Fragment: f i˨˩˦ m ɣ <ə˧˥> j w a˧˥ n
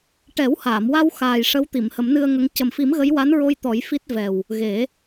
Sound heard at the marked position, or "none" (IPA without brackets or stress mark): ə˧˥